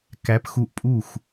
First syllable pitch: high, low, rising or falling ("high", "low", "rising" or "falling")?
rising